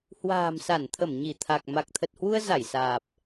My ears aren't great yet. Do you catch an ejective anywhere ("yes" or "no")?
no